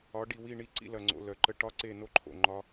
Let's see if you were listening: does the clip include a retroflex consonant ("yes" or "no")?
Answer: yes